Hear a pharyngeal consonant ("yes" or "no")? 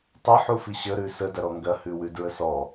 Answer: yes